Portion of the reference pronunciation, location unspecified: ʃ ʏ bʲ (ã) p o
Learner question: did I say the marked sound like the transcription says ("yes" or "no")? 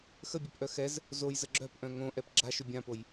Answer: yes